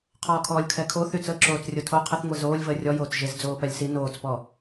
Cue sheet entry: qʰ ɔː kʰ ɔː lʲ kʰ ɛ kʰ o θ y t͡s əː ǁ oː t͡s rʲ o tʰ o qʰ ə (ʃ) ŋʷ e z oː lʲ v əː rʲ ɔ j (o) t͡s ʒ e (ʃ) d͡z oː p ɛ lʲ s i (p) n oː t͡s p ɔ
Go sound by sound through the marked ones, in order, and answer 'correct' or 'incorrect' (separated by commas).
incorrect, incorrect, incorrect, incorrect